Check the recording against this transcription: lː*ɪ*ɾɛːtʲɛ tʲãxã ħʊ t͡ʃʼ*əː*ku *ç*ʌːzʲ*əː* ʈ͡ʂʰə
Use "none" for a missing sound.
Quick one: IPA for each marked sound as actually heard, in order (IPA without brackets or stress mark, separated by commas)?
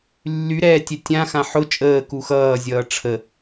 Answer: y, əː, x, ʌː